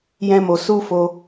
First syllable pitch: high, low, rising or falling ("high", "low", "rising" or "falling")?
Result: high